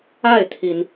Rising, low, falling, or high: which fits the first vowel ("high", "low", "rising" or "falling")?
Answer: falling